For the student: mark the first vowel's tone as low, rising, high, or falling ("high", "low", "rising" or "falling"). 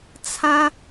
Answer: high